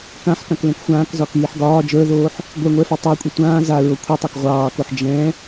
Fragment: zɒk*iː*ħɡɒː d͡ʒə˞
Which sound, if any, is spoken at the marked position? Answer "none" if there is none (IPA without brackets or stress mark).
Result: iː